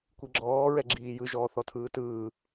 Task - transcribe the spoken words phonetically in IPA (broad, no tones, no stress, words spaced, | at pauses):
kʷiɡ͡ǁɔː ɹɛɡ͡ǁiːjɯ ʒɔːθɔtʰɯːtɯː